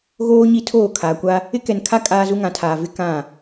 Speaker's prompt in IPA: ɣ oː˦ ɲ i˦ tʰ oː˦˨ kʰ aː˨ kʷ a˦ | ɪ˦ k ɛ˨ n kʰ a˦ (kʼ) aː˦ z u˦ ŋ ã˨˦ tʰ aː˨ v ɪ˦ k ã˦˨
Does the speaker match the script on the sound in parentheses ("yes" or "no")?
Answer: yes